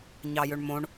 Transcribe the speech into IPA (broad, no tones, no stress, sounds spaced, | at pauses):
ɲ ɑ j ø ɳ m õ ɳ